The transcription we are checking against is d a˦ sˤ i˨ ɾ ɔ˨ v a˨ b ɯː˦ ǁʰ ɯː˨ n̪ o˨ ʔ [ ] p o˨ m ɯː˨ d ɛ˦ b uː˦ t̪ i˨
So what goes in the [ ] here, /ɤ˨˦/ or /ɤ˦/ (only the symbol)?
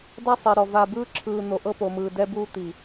ɤ˦